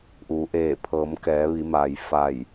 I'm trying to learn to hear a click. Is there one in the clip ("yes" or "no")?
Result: no